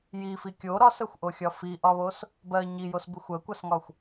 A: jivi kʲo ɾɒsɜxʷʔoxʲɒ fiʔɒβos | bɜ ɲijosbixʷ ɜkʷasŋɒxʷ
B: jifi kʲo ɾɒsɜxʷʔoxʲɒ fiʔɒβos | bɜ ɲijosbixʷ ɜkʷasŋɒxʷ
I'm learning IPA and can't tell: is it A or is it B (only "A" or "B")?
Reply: B